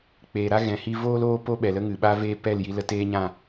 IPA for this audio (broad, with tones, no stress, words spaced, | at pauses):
k͡peː˨ɾa˦ ɣɛ̃˨hi˧ voː˦loː˦po˦ ɓɛ˨lə˦ŋɨ˨ ɓa˦veː˦ pɛ˦˨lji˧ lə˧teː˦ɲã˦˨